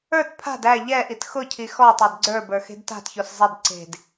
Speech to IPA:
ə˞ t pʰ a̤ d æ ʎ ɛ ʔ i t x ʊ cʰ i x ɔ tˤ e d ɡ͡ǀ ə˞ b ə˞ x e̤ d t a̤ t ç o s zˤ e d ǀ e̤ d

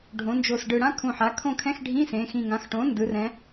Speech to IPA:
ɖʱ õ˩˧ n d͡ʒ o˨˩ s ɖ ɯ˨˩ ɽ ã˥ kʰ ũ˨˩ ħ a˩˧ kʰ õ˦˨ kʰ ɛ̃˧˥˧ x ɖʱ ĩ˧˥˧ s ẽ˩˧ x ĩ˨˩ ŋ ã˩˥ x ʈ õ˩˥ n d ɯ˩˧ r ɛ̃˩˧

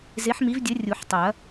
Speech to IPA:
z e˨˥ ħ m i˨˥ v dʲ ɘ˨˥ rʲ u˨˩˦ ħ tˤ ɐ˨˩˦

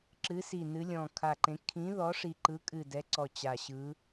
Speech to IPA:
ǁ ɨ˨˥ s i˧˩ n ɨ˨˥ lʲ ɔ̃˧˩ kʰ a˧˩ ǃ ẽ˨˥ kʰ ĩ˨˥ ð ɔ˨˥ ʂ i˧˩ ǃ ɯ˨˥ kʼ ɨ˧˩ d ɛ˨˥ ǀ ɔ˧˩ t͡ɕ a˧˩ ɕ ɯ˨˥

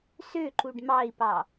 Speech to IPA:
s ø ǃ u ɖ m ɑ i̯ p ɑ

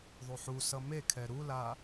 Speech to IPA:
ðˤ u ħ u s ʌ m e kʰ ɛ ɾ u l a

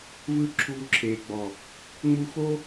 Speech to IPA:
v ɯ˦˨ ǁʰ uː˧ ǁʰ eː˨ ɡ͡b ɔ˨ | ŋ͡m u˧ x o˦

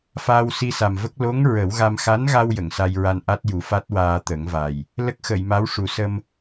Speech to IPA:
f aː˧ w s i˧ s a˨˩ m v ə˦˥ k̚ l o˧˥ ŋ ɹ ə˨˩˦ w ɣ a˧ m x a˧˥ n ɣ a˧ w j ə˨˩˨ ŋ s a˧ j ɹ a˧ n ʔ a˦˥ t̚ j u˨˩˦ f a˦˥ t̚ w aː˧ t̪ ə˨˩˦ ŋ v a˨˩ j | l ə˦˥ k̚ x ə˨˩˨ j m a˧˥ w ʂ u˨˩˦ s ə˧ m

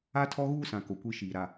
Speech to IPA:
a˦ tʰ ɔ˦ ɣ uː˦ s ã˨ k o˨ kʷ i˦ ʃ iː˨ ɾ a˨

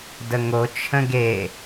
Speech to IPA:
d ə ŋ o t͡ʃʰ ə̃ ɡ e

